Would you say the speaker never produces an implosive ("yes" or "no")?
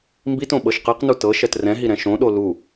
no